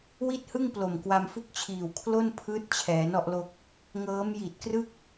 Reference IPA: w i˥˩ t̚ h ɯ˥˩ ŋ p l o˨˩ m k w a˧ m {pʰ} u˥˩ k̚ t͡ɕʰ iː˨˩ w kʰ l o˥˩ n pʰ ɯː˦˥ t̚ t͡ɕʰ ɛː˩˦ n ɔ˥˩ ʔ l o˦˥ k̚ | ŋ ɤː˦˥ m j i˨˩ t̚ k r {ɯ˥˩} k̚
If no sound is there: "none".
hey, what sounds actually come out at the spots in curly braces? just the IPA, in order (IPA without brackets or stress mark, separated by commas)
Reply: f, ɯ˥˩